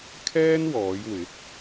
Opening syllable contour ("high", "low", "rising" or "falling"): high